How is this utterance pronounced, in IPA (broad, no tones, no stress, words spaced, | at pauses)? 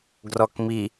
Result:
ɡrɔkmi